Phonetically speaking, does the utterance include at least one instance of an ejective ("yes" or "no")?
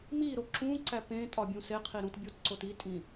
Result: yes